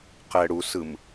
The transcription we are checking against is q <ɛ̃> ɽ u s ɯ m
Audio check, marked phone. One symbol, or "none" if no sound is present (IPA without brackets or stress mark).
ɛ